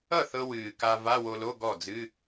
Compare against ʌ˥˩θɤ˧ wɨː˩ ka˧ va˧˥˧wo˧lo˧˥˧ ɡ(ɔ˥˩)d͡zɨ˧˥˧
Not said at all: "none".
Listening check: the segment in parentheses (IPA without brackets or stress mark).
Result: ɔ˥˩